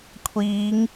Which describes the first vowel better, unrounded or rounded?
unrounded